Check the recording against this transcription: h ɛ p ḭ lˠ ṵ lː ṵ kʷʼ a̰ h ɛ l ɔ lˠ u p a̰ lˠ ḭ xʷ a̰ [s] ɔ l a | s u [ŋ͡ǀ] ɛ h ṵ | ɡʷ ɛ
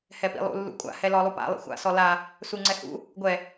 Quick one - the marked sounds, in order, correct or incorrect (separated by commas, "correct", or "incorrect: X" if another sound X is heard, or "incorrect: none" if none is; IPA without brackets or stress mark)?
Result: correct, correct